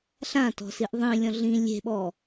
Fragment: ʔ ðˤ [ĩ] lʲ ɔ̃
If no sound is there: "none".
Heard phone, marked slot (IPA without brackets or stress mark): ĩ